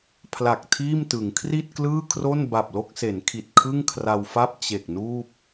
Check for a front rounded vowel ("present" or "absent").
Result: absent